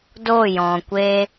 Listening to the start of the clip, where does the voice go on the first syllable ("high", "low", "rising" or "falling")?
falling